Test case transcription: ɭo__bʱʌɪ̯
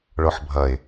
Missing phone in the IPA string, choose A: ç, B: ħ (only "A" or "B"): B